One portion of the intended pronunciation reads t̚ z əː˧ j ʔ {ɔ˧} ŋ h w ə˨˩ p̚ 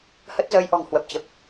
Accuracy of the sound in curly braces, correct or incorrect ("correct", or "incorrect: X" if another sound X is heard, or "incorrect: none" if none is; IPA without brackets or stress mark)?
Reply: incorrect: ɔ̤˨˩